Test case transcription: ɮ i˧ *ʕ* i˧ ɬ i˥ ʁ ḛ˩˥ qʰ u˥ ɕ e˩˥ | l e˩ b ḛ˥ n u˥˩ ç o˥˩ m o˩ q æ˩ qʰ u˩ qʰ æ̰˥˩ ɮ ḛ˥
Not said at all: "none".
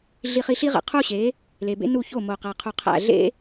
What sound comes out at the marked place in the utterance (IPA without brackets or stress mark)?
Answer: χ